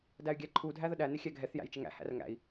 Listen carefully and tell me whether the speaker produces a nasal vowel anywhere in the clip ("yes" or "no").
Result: no